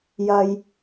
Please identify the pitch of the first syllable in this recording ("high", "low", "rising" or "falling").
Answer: high